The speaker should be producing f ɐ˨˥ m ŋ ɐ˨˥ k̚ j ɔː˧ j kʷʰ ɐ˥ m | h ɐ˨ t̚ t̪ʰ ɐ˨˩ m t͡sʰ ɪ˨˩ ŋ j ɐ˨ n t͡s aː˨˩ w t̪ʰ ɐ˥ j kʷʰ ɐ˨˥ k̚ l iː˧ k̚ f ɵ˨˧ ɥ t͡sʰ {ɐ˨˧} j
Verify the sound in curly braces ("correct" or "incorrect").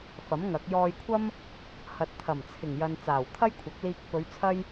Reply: incorrect